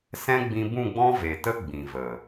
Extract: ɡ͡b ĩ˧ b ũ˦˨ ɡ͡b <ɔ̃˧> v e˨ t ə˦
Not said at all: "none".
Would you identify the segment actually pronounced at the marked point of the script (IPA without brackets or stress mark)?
ɔ̃˦